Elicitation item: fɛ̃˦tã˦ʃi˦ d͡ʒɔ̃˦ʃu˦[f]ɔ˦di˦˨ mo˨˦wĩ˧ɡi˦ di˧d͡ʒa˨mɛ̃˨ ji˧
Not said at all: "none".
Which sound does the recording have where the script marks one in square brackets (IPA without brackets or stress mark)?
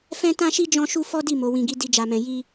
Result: f